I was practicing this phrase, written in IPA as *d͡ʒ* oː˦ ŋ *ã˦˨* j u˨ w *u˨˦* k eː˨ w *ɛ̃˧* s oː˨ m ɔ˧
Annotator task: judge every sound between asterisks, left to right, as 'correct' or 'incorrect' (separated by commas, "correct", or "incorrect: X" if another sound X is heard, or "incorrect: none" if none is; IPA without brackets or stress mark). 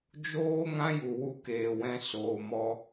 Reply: correct, incorrect: ã˦, incorrect: u˧, correct